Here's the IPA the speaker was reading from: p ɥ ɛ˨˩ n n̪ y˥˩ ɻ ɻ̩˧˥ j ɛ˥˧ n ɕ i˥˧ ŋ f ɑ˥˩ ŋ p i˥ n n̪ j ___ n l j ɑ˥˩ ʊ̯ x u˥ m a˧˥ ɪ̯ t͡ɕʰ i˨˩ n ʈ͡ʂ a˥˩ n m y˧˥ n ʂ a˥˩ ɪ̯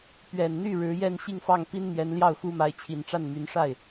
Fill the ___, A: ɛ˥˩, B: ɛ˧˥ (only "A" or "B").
B